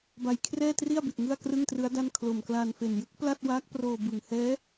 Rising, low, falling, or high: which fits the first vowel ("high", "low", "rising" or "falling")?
low